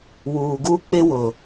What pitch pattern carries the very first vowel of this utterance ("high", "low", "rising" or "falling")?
low